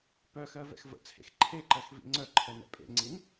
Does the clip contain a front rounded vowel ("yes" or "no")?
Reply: yes